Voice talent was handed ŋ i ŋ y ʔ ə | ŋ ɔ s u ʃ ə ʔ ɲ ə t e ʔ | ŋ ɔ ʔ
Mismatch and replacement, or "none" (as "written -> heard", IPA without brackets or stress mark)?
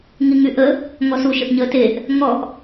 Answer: none